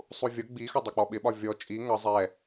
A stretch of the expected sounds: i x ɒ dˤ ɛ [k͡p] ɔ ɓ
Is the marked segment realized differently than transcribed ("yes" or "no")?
no